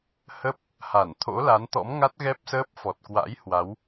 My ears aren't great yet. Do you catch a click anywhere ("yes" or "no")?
no